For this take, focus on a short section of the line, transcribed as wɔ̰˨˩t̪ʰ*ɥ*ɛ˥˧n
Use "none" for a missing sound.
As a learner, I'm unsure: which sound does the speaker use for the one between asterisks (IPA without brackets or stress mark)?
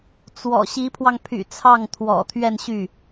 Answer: ɥ